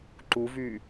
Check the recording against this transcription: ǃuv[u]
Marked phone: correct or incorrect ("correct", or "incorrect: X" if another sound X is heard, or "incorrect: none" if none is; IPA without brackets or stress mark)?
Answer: incorrect: y